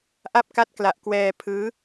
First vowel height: low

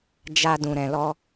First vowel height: low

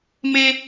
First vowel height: mid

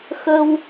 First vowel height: mid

